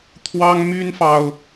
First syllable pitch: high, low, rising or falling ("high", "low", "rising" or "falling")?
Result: high